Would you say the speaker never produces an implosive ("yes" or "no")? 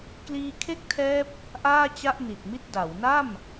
yes